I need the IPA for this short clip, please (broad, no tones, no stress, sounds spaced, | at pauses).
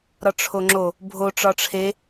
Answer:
ɾ ɒ ʈ͡ʂʰ o ŋ͡ǁ o | bʱ o ʈ͡ʂ ɒ ʈ͡ʂʰ e